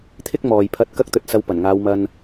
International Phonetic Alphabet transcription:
t̪ʰ ɪ˥ k̚ m ɔː˨ j pʰ ɐ˧ t̚ k ɐ˥ k̚ t̪ ɵ˧ t̚ s ɐ˧ w p ɐ˨˩ n ŋ aː˨˧ w m ɐ˧ n

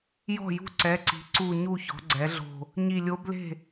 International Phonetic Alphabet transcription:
j ɔ̤˥˩ j ṳ˥˩ ǀ ɛ˩˧˩ ǀ i̤˩˥ ǀ u˧˩ ɲ u˥˩ ç ɔ̤˩˥ ɡ͡ǀ ɛ˩˥ ɮ o̤˧˩ | ɲ i˧˩ lʲ o˧˥ b l e̤˥˩

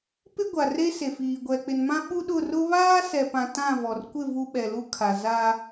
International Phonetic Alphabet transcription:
p ɪ˦ ɡʷ a˨ r e˦ s e˨ f iː˨ ɡʷ ɛ˨ k͡p ɪ˨ n m ã˦ ɓ u˦ ɗ ʊ˦˨ r ʊ˦ β aː˦ s ɛ˨ p ã˨ t ã˦˨ v ɔ˨ r kʷ ɪ˦˨ v u˦ ɓ ɛ˨ l u˦ kʰ a˨ z a˦

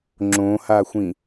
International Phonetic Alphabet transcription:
ŋ͡ǁ õ h a xʷ ĩ

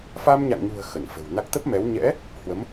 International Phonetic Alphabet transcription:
f a˧ m ɲ a̰˧˨ ŋ ɲ ṳ˨˩ ə̯ x ə˧˩ n f ə̤˨˩ w n a˦˥ k̚ t̪ ə˦˥ p̚ m ɛ˨˦ w ɲ ɛ̰˧˥ | h w ə˨˦ m

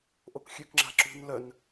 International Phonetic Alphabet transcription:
ʔ o k xʲ ø k ŋ͡ǁ a̤ ǁ ṳ n l œ n

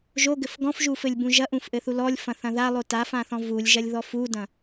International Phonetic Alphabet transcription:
ʒ o ɡ ɘ f ɡ ɔ̃ f ʒ u f ɘ lʲ b ũ ʒ ɐ ʔ ũ f ʔ ɘ θ u l ɔ lʲ f ɐ̃ θ ɐ̃ ð a lˠ o t a f ã θ ɔ̃ v u lʲ ʒ ɐ lʲ ð ɔ f u d ɐ̃

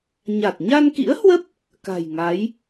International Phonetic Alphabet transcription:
ɲ a˨˩ t̚ ɲ a˧ n k ḭ˧˥ ə̯ h w ə˦˥ p̚ | k a̤˨˩ j ŋ a˨˦ j

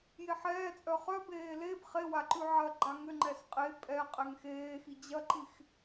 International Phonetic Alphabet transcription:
j e ħ ɛː t͡sʼ œ χ œ b eː l e b χ e w a ǃ ʉ ʕ ɐ ɡ͡ǃ a ŋ ʏ ŋ͡ǃ ɛ s qʼ e pʼ ɛ qʼ ɛ ŋ x eː x i d͡ʑ ɐ ǃ i x

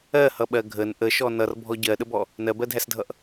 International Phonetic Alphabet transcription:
ɜ h ʌ ɓ ɜ ɡʱ ə n ʔ ə ʃ ɔ n ʌ r bʱ ɔ ɟ ɜ ɗ ə b ɔ | n ɜ b ɜ dʱ æ s dʱ ʌ ʔ

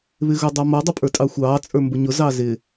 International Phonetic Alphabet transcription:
β ɪ ɣ ʊ dˤ ɑ m ʌ dˤ ʊ pʼ ə˞ tʼ ɑ xʷ ɑː t͡sʼ ə˞ m b ʊ ɲ ʊ z ɑ z ɪ

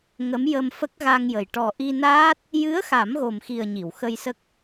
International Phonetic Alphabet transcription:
ŋ ə˧˥ m j ə˧ m f ə˦˥ k̚ ɣ a˧ ŋ j ə˨˩ j ʈ ɔ˨˩ ʔ i˧ n aː˦˥ t̚ | j ɨ˧˥ ə̯ x a˨˩˦ m ɣ o˨˩ m x i˨˩ ə̯ ɲ i˨˩˨ w x ə˧ j s ə˦˥ k̚

